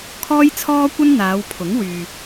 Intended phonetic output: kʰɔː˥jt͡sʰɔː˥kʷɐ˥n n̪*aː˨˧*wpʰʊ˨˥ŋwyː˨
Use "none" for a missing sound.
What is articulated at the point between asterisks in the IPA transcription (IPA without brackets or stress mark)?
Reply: aː˨˧